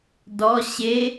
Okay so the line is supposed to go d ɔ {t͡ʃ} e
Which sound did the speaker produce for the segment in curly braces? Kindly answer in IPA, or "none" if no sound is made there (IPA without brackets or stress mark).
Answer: ɕ